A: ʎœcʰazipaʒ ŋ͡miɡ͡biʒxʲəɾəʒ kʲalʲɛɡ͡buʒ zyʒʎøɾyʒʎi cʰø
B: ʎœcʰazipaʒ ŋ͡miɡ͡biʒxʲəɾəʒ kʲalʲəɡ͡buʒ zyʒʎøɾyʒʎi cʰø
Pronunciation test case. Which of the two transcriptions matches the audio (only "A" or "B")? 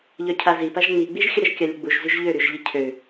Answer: B